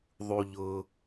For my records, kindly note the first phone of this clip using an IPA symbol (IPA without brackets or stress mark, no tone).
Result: ðˤ